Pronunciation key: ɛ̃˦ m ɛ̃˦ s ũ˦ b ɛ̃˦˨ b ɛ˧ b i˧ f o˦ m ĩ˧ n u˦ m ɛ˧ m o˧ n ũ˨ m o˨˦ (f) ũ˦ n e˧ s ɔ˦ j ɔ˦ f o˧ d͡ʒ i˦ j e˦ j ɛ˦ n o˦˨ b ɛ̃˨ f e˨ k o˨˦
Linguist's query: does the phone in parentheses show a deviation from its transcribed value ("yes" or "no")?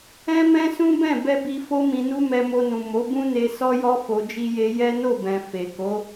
yes